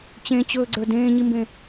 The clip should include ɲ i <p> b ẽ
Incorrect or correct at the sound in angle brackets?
incorrect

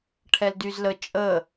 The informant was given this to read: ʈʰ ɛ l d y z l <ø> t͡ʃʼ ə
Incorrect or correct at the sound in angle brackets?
incorrect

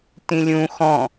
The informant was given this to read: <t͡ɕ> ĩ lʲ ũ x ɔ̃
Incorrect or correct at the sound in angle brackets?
incorrect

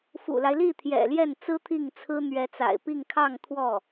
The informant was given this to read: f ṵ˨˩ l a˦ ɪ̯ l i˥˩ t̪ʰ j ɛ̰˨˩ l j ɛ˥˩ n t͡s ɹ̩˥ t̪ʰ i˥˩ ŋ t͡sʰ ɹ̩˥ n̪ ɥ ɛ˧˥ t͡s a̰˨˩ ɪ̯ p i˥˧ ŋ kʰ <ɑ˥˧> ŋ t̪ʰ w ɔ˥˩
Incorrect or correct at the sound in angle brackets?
correct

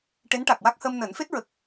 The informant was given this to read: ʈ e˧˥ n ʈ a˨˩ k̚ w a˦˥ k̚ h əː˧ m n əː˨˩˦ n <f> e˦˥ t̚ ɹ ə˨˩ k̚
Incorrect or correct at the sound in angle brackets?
correct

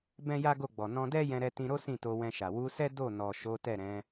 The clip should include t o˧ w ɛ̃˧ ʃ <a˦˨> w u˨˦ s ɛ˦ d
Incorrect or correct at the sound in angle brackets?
incorrect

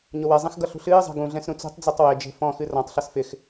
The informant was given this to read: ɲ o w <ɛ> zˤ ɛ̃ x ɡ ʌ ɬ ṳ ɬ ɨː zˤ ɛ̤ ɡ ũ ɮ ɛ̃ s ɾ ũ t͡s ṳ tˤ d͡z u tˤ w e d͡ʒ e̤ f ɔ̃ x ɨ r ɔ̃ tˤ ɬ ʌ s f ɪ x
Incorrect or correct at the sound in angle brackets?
correct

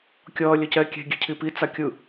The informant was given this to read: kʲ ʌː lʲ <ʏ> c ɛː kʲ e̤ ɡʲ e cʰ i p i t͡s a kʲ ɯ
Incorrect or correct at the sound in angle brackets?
incorrect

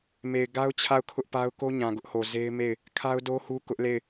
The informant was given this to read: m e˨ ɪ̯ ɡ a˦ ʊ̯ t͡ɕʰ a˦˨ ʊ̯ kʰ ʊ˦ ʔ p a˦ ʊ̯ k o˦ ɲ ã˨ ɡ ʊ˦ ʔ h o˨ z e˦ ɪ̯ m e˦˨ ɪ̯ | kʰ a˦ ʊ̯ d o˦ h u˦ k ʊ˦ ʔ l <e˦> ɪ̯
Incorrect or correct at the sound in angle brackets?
incorrect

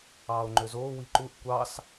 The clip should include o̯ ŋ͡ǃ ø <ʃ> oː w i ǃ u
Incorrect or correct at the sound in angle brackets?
incorrect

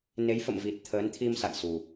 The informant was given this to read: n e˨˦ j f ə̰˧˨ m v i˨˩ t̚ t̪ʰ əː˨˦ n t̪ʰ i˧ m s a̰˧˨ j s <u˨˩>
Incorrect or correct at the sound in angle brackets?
correct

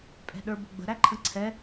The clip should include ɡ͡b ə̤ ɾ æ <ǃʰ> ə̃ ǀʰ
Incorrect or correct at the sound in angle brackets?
correct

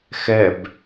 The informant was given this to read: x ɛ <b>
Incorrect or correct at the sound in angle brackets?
correct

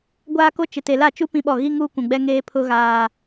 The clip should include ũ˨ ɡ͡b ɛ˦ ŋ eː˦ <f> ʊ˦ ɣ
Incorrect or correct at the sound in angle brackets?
incorrect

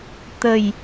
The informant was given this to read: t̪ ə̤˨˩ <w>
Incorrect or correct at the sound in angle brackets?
incorrect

